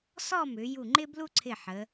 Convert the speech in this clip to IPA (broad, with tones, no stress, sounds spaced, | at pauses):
s ɔ˥˧ m ʏ˩˧ j u˧˩ ŋ͡ǃ ɪ˥ b l u˥ ǀʰ ɪ˧˩ ħ ə˩˧